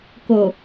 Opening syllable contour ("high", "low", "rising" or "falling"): low